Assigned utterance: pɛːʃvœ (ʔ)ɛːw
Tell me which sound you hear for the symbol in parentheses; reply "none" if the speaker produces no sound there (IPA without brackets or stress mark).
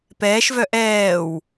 ʔ